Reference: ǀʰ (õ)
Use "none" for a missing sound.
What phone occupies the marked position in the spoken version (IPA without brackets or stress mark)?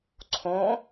õ